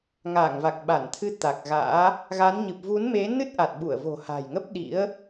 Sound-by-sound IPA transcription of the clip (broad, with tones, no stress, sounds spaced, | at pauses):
ŋ aː˧˩ ŋ v a˨˩ k̚ ɓ a˧˩ n t̪ʰ ɨ˧ t̪ a˨˩ k̚ ɣ a̰ː˧˥ | ɣ a˨˦ n ɲ ɨ˨˩ p̚ v u˨˦ n m e˨˦ n ɨ˦˥ t̚ ʔ a˨˩ t̚ ɓ u˧˩ ə̯ v o̤˨˩ h a̤˨˩ j ŋ ə˦˥ p̚ ɗ ḭ˧˥ ə̯